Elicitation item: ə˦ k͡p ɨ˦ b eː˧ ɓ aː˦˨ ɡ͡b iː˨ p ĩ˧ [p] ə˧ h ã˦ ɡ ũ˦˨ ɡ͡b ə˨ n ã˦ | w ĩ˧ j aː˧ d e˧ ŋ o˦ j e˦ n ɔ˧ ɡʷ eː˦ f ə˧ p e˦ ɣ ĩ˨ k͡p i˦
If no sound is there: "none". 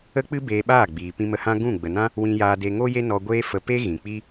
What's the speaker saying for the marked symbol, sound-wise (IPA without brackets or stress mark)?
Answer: m